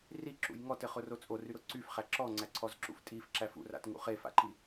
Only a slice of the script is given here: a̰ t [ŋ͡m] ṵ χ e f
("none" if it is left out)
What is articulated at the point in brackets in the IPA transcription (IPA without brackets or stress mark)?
ŋ